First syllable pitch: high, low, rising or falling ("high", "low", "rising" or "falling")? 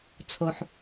low